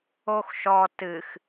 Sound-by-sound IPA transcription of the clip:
oxʃɔ tɨx

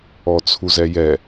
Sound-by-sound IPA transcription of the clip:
ɔt͡sʰuzɛjɛ

